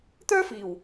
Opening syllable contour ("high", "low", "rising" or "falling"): high